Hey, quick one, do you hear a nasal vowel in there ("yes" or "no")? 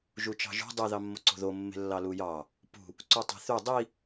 no